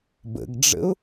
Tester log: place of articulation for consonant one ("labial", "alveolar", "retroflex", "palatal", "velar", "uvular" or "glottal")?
labial